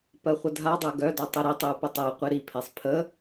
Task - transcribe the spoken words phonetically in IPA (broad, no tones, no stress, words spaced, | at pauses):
pɜχʷədʱadˤæ ɡœdɔ tˤiɾitˤiu̯ pətˤæqʷi ɾipʰesˤ pʰə